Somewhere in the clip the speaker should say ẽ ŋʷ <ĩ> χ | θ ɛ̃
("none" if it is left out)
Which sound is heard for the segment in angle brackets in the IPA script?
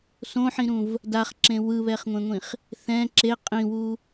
ĩ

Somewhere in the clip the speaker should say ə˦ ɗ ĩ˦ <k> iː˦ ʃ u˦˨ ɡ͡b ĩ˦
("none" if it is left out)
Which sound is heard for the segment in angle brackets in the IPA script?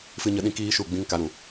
k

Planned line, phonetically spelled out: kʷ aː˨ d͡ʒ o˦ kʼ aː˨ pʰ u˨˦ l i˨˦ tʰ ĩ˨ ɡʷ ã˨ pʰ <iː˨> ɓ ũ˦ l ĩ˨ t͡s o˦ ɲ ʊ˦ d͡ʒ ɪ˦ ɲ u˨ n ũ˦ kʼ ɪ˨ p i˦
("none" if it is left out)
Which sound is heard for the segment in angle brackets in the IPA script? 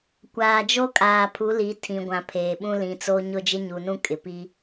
eː˨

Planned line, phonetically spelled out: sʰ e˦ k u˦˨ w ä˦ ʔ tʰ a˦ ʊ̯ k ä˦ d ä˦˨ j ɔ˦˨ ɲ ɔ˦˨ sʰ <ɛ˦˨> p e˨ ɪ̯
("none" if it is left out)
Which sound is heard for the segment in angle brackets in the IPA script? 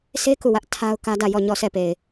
ɛ˦˨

